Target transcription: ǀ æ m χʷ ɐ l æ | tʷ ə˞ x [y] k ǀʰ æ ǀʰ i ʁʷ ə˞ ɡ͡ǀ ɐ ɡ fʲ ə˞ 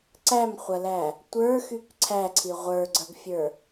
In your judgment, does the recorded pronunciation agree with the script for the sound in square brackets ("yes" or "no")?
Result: yes